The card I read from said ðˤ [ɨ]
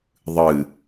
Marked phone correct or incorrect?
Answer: correct